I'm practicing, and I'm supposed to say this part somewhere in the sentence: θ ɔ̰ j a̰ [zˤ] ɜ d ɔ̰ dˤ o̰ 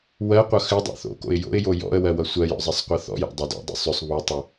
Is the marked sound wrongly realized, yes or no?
yes